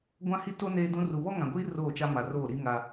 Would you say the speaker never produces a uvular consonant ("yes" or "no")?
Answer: yes